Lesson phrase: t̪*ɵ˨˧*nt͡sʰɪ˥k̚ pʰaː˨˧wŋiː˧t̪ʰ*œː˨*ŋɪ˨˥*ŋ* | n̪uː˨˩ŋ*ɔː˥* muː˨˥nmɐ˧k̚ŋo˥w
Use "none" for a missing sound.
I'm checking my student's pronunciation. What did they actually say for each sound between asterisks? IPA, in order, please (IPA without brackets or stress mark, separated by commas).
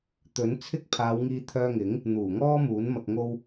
ɵ˨˥, œː˧, ŋ, ɔː˥